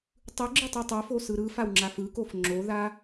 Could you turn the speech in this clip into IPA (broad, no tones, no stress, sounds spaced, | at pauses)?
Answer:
tˤ ɯ ɡ͡ǁ ɯ tˤ ɯ tˤ o f o s ɯ ɾ ɯ f a w ŋ͡ǁ a f ɯ k o f ŋ͡ǁ o ð a